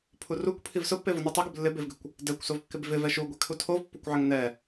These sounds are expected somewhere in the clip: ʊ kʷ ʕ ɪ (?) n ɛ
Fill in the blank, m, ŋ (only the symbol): ŋ